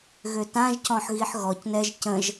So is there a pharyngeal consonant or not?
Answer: yes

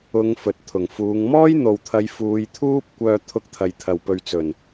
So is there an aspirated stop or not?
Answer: yes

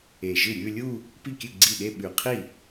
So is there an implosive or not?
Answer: yes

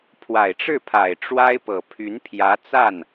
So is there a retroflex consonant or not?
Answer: yes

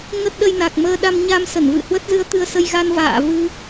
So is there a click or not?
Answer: no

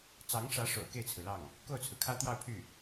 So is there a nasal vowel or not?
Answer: no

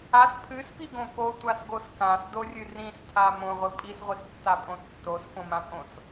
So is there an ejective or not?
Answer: yes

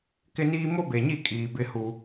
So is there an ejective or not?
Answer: yes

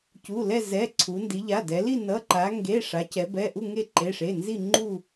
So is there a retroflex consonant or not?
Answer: yes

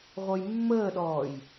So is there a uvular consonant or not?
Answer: yes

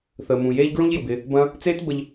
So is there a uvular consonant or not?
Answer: no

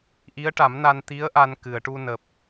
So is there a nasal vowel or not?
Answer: no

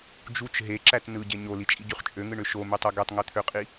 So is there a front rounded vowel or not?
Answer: yes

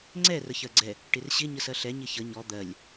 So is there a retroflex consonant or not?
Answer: yes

